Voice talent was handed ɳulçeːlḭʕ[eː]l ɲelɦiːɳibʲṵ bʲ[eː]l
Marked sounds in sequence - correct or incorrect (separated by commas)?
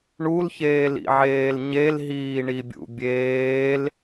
correct, correct